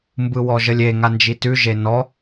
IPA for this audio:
m b ɯ w ɔ ʒ ə lʲ e ŋ a n d͡ʒ i t ʉ ʒ e n ɔ

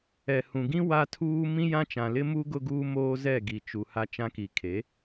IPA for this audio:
ɛ˨ h ũ˨ ɡ ĩ˦ w a˦ tʰ uː˦ m ĩ˦ j ã˦ t͡ʃ ã˨ l ɪ˦ m u˦ ɡ ʊ˦ ɡ uː˦ m oː˦ z ɛ˦˨ ɡ i˨ t͡ʃ u˨ h a˦ t͡ʃ ã˦ k i˨ kʰ e˨˦

